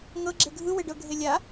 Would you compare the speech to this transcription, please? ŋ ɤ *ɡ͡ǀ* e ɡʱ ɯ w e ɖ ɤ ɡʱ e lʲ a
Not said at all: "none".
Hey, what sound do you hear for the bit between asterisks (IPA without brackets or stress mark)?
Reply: ɡ͡ǁ